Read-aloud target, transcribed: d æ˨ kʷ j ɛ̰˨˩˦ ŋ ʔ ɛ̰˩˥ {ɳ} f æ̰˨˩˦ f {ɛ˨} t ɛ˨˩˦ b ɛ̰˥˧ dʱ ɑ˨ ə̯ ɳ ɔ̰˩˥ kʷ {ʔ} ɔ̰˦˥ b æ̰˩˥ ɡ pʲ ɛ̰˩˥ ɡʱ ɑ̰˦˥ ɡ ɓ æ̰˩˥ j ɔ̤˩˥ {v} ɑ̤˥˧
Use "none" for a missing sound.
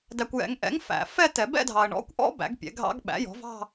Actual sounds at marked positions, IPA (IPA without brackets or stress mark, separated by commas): ŋ, ɛ˥˧, ʔ, v